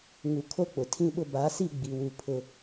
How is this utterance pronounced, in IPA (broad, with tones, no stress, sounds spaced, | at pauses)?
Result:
ŋ u˨ kʰ o˦ k͡p ʊ˨ tʰ ĩ˦ ɓ ʊ˦ b a˨˦ s i˦˨ ɡ͡b i˨ w u˨ pʰ ʊ˨